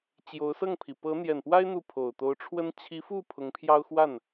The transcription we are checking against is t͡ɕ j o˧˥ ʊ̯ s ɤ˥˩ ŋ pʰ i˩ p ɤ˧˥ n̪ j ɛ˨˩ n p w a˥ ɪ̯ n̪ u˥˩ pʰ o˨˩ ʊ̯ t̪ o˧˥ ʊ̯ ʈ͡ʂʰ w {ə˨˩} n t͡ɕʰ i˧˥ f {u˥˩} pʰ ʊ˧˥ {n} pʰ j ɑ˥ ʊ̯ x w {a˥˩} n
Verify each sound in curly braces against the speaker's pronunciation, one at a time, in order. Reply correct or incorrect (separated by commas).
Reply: incorrect, correct, incorrect, correct